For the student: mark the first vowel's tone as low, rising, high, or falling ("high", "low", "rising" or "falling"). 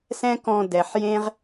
high